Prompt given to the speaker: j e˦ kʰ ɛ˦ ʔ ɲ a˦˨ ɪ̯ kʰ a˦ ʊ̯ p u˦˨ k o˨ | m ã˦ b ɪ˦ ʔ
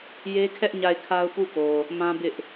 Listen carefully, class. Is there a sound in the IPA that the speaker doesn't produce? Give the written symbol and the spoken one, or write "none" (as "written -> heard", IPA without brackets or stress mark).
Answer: none